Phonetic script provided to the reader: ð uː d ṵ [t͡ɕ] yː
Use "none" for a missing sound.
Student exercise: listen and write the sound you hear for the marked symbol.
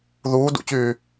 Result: t͡ɕ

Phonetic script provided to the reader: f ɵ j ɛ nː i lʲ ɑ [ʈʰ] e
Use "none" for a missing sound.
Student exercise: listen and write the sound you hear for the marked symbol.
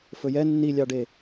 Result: ɖ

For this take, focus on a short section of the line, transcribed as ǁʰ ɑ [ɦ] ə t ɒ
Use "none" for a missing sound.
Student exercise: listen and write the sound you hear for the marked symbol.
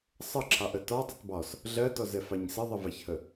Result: ʔ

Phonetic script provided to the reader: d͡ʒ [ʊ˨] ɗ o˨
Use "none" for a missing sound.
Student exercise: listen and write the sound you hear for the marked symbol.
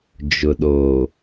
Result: ʊ˨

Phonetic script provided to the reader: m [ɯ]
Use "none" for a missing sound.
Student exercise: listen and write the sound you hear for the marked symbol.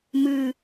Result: ɯ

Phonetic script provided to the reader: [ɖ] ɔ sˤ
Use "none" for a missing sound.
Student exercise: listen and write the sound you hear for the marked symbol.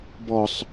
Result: b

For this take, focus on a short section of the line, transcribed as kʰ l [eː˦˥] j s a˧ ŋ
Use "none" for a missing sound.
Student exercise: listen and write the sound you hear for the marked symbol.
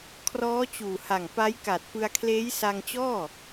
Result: eː˦˥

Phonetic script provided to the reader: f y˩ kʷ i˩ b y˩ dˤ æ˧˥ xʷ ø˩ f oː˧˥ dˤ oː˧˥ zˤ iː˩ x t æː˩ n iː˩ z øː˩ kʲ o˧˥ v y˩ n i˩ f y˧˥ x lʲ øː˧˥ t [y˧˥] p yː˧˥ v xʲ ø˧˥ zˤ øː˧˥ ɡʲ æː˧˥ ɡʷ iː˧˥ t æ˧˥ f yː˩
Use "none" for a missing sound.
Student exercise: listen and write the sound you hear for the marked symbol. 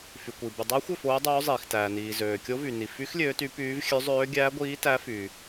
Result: y˧˥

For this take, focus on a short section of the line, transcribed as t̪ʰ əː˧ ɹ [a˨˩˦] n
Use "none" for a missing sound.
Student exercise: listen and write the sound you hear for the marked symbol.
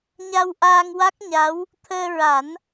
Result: a˨˩˦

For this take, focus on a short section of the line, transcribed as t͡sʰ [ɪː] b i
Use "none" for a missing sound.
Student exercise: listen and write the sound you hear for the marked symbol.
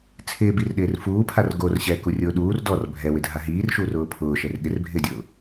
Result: ɪː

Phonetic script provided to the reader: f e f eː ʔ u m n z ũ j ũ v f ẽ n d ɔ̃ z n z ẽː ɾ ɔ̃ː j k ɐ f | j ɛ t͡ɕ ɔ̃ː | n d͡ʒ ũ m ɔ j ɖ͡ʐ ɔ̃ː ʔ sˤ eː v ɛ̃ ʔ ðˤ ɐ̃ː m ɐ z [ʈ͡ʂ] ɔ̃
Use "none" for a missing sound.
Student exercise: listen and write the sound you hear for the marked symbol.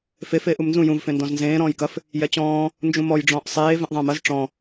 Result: ʈ͡ʂ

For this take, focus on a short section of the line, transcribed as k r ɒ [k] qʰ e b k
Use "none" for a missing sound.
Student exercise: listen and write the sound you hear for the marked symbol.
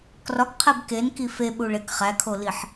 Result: k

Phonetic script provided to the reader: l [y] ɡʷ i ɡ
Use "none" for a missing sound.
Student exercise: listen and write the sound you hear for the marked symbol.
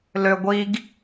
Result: ø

